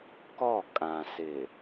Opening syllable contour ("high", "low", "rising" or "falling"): falling